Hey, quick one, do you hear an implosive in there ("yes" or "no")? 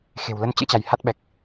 yes